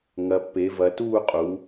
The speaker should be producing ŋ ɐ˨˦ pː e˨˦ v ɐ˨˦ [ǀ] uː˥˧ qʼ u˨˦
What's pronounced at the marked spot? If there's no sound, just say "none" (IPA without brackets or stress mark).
t